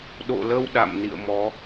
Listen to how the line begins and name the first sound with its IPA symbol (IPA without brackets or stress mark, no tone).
ɗ